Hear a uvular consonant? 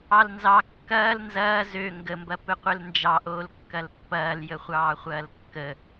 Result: yes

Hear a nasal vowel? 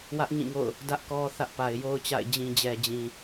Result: yes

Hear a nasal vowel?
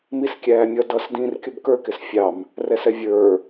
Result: yes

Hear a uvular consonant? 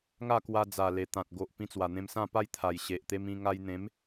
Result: no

